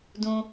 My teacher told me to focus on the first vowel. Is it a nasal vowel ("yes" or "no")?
yes